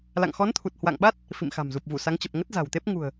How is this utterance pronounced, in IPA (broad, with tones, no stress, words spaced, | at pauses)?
la̰˧˨ŋxɔ˨˦nt̪ʰu˨˩t̚ hwa̰˧˨ŋɓa˦˥t̚ | fḭ˧˨mxa̤˨˩mzu˨˩p̚vu˧˩ sa˨˦ŋt͡ɕə˨˩p̚ ŋə˦˥t̚za̤˨˩wt̪e˦˥p̚ ŋṳ˨˩ə̯